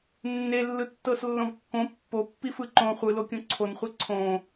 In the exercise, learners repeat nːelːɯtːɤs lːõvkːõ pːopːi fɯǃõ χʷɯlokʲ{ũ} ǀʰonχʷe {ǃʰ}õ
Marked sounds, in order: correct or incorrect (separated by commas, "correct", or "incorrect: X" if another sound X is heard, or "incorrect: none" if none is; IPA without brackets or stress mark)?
incorrect: õ, incorrect: ǀʰ